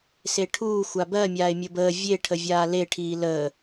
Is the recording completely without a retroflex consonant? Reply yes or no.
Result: no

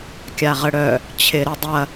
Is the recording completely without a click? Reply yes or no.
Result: yes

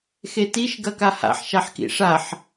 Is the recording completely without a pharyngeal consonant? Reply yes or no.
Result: no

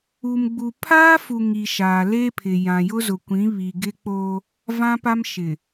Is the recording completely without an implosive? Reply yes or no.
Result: yes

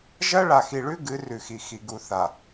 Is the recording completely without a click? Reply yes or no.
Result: yes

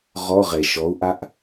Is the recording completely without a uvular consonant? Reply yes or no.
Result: no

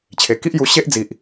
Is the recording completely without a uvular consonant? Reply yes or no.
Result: yes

